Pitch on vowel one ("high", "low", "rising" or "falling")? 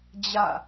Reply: falling